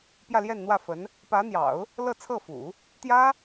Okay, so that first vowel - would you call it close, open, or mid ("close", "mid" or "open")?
open